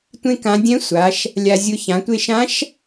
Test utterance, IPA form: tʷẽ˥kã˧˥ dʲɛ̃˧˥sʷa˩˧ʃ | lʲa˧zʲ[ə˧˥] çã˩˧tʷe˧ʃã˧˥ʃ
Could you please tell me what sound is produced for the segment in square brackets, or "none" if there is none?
ʊ˧˥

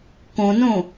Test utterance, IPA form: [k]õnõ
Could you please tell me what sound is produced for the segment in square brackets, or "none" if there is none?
k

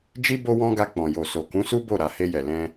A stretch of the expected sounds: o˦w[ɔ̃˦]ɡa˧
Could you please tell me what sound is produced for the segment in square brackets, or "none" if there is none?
ɔ̃˦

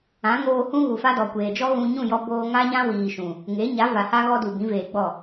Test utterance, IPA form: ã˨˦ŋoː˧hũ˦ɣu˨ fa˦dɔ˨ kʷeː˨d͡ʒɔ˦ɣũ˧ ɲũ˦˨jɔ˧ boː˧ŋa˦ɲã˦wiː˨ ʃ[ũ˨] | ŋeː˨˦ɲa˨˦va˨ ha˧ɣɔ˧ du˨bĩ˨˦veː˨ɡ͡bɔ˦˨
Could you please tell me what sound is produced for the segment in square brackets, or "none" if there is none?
ũ˨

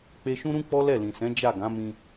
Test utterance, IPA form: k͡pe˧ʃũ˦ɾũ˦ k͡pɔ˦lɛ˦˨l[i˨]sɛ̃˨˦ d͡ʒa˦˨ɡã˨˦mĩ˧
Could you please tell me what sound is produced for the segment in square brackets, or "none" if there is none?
ĩ˨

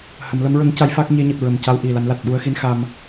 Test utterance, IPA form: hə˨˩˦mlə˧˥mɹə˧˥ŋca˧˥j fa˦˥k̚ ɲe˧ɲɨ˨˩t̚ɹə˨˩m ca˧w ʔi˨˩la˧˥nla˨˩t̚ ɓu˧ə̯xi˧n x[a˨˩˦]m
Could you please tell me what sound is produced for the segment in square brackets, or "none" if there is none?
a˧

